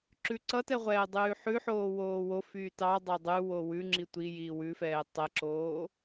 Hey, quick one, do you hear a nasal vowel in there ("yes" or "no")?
no